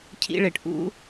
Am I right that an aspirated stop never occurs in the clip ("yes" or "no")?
no